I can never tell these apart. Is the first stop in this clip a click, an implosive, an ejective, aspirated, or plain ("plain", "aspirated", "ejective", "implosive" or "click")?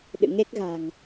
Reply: implosive